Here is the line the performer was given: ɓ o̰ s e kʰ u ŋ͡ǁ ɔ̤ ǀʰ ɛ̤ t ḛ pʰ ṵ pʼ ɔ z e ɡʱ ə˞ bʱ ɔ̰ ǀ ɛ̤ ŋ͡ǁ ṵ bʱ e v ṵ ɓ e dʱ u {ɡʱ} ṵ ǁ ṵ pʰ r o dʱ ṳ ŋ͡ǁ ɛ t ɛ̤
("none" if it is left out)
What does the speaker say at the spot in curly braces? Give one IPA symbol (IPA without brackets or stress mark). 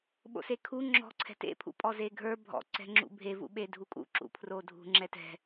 kʼ